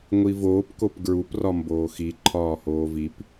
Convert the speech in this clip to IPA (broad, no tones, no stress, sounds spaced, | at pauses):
ŋʷ i v oː p k o p ɡ ɹ u p r ɒ m b oː x i ǃʰ ɒː h oː v i p